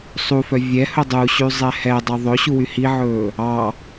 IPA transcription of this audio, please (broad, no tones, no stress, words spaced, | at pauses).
sˤufœ vʲɛhɵ dˤuɕyzˤɛ hɛdˤo ðˤɵɕuwy hiʕɵː | ɑ